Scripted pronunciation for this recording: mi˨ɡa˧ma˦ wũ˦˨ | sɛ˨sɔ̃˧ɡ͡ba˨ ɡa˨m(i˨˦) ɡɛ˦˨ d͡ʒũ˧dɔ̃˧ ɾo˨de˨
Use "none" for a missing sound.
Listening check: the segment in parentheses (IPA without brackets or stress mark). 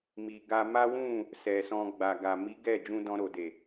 i˨˦